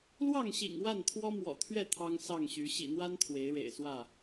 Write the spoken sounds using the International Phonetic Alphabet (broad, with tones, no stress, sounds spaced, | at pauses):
l w ɑ˥˨ ŋ ɕ ḭ˨˩ ŋ w a˥˨ n t̪ʰ w ɔ˦ m w ɔ̰˨˩ t̪ʰ ɥ ɛ˥˨ t̪ʰ ɑ˦ ŋ s ɑ˥˨ ŋ ɕ y˨˦ ɕ ḭ˨˩ n̪ w a˦ n t̪ʰ w e˨˦ ɪ̯ ɻ ḛ˨˩ ɪ̯ s w ä˥˨